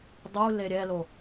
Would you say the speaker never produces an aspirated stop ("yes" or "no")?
yes